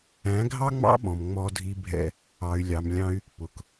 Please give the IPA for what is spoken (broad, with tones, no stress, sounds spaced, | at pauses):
æ̃˨˦ ɡʱ ɑ˦ ŋ͡m ɑ̰˦ ɓ ɔ̃˨ m ŋ͡m ɔ˧ dʱ i˧ bʱ ɛ̰˧ | ɑ˨ y̯ lʲ ɑ˨ m lʲ ɑ̃˧ y̯ | p ʊ˨ k